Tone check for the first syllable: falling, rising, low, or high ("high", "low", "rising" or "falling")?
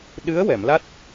rising